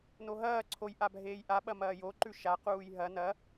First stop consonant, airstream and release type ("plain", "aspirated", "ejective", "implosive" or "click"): click